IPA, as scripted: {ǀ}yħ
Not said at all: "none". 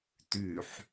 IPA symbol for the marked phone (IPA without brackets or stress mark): t